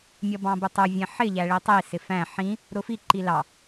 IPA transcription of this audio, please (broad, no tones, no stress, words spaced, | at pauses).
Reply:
mʲʌbɑ̃bʊtˤʊ vʲɛ̃ħɪ ʎæɭitˤi sɪfæ̃ ħĩ | ɾʊfi ǃilɑ